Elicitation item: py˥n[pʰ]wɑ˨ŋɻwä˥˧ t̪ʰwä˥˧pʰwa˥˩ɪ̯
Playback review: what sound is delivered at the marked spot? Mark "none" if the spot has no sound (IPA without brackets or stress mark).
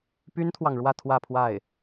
t̪ʰ